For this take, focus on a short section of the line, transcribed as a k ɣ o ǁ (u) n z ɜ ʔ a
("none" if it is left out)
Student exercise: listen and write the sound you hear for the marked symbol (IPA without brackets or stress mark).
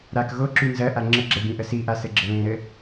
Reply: y